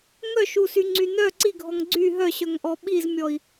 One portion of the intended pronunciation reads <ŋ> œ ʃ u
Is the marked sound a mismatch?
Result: no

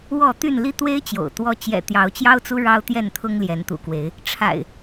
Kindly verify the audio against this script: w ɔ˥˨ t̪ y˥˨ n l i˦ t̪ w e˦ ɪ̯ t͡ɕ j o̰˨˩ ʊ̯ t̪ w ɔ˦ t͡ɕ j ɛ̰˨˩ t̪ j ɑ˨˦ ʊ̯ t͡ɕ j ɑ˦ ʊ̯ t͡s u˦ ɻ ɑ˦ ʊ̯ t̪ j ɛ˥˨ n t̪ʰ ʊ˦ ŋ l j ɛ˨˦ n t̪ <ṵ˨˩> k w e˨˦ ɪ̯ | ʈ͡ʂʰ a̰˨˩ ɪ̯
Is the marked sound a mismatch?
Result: no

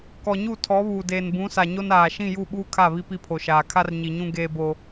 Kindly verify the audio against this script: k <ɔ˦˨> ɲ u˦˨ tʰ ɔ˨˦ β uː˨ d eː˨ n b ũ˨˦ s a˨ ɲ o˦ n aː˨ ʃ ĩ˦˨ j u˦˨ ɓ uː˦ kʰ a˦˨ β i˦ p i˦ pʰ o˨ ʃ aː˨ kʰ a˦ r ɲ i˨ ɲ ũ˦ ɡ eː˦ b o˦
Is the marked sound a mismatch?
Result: yes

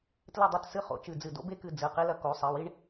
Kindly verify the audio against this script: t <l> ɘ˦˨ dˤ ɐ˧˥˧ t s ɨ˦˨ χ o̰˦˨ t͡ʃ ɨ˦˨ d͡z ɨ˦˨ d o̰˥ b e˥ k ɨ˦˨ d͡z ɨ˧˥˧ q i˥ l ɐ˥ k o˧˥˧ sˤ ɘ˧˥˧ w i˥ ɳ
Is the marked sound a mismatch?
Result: no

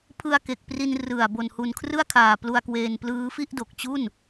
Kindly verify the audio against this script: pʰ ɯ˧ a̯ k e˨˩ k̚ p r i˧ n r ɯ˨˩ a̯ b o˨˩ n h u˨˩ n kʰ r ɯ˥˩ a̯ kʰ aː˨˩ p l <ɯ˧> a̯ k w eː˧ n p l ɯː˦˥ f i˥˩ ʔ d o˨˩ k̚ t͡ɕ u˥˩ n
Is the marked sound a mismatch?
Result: yes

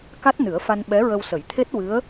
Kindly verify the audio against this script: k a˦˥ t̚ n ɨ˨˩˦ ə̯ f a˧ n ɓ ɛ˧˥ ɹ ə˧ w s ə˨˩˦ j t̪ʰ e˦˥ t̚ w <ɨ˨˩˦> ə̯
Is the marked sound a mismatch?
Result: yes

